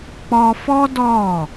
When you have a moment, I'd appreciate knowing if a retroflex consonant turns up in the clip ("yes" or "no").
no